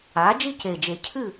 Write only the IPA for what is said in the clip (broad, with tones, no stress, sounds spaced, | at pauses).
a˩˥ d͡ʒ i˥˨ c e˨˩ d͡ʒ e˨˩˦ cʰ ɨ˥˨